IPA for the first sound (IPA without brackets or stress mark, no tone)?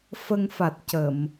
f